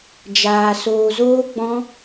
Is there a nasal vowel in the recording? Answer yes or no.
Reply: yes